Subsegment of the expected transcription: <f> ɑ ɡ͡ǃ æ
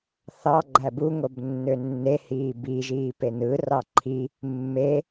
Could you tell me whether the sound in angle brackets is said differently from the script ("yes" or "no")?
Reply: yes